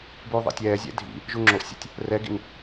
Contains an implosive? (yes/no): no